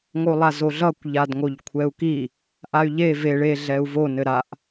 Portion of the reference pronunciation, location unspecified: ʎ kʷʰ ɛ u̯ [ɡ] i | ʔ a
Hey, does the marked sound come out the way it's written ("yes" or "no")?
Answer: no